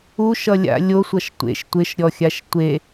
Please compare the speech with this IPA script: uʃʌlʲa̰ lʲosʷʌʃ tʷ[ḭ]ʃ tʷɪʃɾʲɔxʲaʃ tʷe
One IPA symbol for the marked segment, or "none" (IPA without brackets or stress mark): ḛ